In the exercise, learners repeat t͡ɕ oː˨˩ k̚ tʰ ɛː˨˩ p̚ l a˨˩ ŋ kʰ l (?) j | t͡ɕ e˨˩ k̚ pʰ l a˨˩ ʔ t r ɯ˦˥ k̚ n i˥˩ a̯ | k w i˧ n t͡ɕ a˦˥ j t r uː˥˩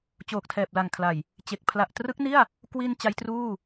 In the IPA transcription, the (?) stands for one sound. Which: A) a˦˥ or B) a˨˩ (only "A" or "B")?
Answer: B